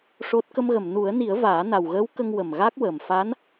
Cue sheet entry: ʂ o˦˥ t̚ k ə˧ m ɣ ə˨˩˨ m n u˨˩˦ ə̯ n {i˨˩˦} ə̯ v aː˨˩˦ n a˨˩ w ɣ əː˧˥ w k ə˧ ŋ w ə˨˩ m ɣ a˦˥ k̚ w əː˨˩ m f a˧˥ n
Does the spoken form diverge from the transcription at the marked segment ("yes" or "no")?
no